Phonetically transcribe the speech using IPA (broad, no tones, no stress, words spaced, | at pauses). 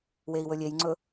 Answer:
wei̯wɵlʲejŋ͡ǀɵ